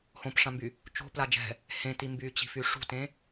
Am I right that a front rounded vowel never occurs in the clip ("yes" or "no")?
no